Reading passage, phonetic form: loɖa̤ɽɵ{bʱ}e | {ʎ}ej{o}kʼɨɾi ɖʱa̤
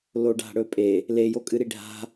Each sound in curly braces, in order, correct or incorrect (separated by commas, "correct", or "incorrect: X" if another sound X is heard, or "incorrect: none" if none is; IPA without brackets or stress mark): incorrect: pʼ, incorrect: l, correct